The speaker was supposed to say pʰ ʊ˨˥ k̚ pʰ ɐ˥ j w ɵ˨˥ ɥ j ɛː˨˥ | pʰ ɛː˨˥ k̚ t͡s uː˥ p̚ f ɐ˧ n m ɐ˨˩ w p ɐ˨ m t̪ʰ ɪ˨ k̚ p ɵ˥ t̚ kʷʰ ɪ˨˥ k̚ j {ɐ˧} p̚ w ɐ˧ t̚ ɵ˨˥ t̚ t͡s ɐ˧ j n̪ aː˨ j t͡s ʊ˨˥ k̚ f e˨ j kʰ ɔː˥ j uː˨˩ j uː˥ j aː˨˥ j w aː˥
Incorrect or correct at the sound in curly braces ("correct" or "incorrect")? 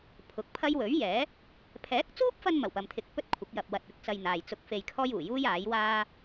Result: correct